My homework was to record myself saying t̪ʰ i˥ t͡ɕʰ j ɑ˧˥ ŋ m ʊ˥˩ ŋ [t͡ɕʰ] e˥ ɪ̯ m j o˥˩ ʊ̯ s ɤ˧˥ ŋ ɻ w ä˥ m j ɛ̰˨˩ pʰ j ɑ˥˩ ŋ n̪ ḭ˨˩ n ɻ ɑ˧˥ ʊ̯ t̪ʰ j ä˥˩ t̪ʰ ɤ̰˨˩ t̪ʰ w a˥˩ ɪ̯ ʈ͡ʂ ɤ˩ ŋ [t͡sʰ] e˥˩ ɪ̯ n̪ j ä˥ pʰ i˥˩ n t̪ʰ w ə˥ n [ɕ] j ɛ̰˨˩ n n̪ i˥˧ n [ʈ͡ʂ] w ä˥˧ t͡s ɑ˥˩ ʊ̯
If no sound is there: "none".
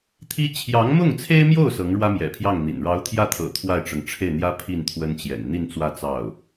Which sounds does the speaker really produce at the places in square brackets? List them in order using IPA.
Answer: t͡sʰ, ʈ͡ʂʰ, t͡ɕ, t͡s

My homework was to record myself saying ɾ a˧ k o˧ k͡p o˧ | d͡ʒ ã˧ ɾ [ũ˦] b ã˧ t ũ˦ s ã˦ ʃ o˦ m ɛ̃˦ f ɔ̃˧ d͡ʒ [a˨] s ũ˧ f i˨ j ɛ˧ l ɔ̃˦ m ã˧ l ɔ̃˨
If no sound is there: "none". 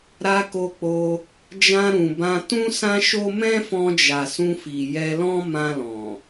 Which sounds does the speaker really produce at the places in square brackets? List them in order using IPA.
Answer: ũ˨, a˨

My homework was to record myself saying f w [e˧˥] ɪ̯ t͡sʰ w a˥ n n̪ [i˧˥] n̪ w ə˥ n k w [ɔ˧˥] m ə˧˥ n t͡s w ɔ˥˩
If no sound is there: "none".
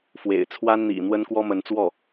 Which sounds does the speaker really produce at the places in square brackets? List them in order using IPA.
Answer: ḛ˨˩, ḭ˨˩, ɔ˥

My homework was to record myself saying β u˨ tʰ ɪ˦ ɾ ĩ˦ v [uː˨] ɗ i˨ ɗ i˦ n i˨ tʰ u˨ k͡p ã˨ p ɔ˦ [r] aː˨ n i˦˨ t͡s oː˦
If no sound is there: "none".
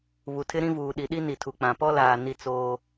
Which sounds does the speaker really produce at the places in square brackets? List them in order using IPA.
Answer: uː˨, l

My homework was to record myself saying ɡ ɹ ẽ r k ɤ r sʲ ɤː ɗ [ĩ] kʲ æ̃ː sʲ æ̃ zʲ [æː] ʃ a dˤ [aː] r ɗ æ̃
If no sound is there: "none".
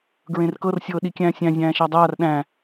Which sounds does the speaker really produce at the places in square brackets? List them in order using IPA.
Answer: i, æ̃ː, aː

